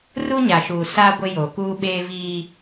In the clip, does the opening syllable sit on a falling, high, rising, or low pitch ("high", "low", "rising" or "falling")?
high